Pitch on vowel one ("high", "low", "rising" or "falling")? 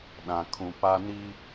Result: low